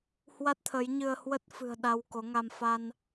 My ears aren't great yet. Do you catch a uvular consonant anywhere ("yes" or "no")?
no